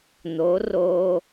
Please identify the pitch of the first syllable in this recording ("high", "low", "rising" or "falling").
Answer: rising